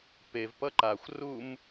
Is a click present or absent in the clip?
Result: present